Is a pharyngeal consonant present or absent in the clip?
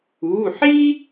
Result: present